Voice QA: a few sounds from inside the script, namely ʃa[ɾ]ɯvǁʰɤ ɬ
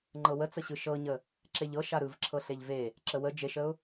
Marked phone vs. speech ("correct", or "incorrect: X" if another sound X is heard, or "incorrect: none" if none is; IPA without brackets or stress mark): correct